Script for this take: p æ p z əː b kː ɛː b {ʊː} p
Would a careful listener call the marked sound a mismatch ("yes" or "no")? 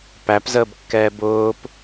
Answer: no